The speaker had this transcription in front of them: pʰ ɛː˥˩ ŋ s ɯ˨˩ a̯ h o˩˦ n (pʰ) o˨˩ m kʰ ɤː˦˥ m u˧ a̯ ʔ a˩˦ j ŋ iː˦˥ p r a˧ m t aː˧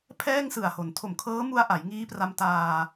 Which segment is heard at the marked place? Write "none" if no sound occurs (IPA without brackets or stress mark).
tʰ